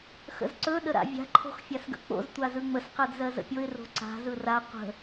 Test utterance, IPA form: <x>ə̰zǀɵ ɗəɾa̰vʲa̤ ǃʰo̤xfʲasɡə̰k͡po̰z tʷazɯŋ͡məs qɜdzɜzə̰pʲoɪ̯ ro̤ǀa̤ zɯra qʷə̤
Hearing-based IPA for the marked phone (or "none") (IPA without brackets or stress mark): x